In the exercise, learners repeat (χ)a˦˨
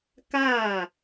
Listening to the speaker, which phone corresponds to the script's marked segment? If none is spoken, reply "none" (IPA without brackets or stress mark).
k